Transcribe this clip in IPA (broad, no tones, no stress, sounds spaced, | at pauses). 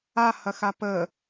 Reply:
a h ɐ x a p ə